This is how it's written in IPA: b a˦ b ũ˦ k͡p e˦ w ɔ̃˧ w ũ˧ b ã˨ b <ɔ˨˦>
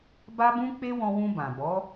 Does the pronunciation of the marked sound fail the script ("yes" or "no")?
no